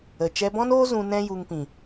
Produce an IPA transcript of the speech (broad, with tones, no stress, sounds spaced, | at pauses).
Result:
ə˨ t͡ʃ ɛ˧ b ɔ̃˦ n oː˦ z ũ˧ n ɛ̃˦ j u˧ ŋ p ĩ˨